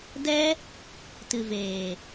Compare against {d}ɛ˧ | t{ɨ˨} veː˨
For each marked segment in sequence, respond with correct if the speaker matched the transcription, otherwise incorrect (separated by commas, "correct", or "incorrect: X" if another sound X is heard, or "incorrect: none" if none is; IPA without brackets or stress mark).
correct, correct